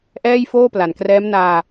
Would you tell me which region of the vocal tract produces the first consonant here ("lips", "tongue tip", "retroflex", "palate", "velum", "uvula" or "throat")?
throat